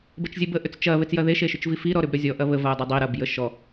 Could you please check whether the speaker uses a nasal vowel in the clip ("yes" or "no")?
no